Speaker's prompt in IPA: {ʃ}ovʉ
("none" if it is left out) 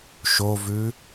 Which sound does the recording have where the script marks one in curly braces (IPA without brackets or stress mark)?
ʃ